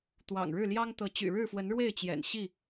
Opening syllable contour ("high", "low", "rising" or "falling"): low